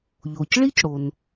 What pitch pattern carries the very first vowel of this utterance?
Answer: low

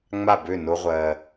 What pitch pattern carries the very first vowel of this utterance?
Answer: falling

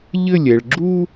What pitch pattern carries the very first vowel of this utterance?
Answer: falling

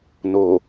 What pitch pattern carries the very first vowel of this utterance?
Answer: low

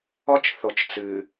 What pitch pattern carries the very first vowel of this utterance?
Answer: high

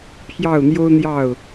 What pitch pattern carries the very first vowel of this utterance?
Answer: falling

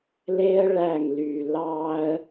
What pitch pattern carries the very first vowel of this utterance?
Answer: high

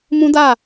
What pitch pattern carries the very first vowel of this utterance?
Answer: high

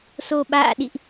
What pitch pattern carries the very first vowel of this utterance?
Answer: low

